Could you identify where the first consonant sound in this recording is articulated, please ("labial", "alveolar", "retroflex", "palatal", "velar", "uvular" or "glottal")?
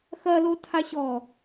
velar